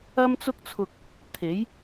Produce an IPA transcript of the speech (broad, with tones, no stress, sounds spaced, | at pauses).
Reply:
ɐ˥ m t͡s ʊ˥ k̚ t͡sʰ ʊ˧ k̚ | t̪ʰ e˨˥ j